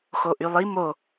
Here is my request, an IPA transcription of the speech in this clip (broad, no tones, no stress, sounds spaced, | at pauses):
x o ʔ y lˠ i m o